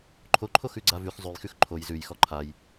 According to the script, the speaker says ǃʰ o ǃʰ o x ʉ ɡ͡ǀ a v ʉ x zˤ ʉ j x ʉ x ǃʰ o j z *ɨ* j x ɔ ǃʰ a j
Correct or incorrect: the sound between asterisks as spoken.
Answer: incorrect: ʉ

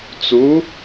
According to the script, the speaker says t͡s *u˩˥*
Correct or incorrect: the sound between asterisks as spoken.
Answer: correct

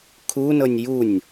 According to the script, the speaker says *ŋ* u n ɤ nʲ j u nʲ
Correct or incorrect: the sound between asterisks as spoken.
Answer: incorrect: kʰ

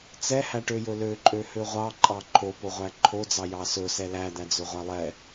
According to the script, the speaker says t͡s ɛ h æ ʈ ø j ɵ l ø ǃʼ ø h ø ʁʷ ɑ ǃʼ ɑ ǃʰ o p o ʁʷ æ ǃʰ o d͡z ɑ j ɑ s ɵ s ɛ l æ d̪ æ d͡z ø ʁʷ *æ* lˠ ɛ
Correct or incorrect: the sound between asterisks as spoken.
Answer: correct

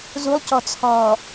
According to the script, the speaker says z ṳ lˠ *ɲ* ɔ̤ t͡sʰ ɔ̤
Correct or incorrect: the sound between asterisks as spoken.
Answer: incorrect: c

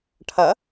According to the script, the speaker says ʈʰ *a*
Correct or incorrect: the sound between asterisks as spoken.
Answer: incorrect: ʌ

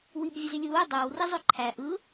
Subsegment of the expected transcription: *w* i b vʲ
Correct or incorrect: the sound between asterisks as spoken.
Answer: correct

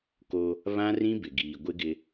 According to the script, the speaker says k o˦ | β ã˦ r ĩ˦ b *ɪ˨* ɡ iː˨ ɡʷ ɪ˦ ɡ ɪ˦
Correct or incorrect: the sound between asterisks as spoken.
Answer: correct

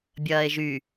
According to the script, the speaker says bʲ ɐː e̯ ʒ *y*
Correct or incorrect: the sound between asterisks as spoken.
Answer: correct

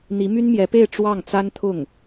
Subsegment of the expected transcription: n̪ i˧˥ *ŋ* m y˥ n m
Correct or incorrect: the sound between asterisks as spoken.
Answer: incorrect: none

